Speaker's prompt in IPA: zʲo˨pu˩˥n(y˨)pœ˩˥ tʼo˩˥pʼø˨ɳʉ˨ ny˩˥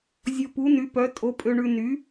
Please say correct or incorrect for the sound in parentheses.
incorrect